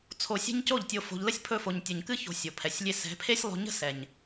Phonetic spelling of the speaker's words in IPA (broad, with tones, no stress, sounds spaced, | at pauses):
t͡sʰ o˨ sʲ ɛ̤˦ ɲ c o˦˨ ʎ tʲ o˨ f o̤˨ ʎ l ə˦ sʲ pʰ ɵ˧ f o˨ ɲ tʲ o˨ ɲ k ɨ˦ ç o̤˨ sʲ o˨ pʰ ɛ˨ sʲ lʲ e˦ s ɛ̤˨˦ pʰ e˦ sʲ lˠ o̤˧ ɲ ə̤˦ s ɛ˨ ɲ